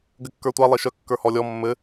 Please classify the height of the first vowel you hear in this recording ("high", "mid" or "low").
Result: mid